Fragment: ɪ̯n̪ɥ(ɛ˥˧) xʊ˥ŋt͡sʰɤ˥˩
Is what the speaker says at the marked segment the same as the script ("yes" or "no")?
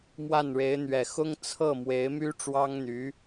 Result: no